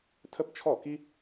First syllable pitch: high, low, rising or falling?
high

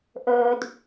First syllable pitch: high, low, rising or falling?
low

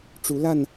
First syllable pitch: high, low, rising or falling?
rising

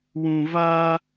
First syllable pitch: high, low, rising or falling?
low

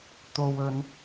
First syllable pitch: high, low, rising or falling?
low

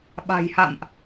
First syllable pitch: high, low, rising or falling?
low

